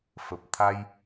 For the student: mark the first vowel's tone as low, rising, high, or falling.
low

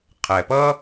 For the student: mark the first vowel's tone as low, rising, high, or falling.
low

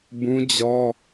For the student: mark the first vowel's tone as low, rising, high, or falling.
high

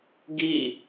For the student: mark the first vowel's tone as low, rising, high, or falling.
falling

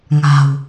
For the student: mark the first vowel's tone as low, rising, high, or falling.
low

